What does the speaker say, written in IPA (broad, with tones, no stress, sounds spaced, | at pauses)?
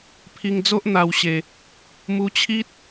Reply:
pʰ i˧ ŋ d͡z o˦ ʔ n̪ a˧ w ɕ e˧ | m u˧ t͡ɕʰ i˦ t̚